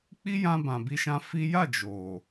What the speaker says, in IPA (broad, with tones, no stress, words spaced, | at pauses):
k͡pi˦jã˧ bã˨bi˧ʃã˧ fi˦ ja˦˨ d͡ʒo˨